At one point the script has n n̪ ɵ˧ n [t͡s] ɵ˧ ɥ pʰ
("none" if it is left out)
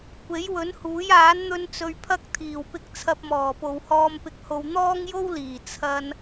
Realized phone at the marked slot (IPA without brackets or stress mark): t͡s